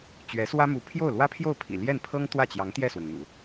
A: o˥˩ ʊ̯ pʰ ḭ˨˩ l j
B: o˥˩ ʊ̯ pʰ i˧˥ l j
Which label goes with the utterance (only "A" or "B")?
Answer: A